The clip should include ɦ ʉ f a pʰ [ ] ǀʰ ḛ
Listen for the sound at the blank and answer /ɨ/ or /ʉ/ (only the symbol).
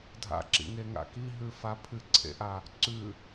ɨ